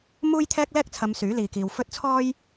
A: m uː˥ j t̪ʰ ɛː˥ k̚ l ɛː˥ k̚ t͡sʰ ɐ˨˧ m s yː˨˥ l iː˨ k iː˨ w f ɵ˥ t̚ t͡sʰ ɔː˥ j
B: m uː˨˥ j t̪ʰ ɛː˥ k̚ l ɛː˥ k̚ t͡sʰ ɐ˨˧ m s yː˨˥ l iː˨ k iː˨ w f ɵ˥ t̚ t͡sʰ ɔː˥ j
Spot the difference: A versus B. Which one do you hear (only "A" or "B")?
A